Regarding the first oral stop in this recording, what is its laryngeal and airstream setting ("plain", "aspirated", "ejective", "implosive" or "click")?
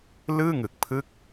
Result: plain